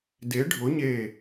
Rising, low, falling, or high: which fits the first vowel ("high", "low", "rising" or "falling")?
rising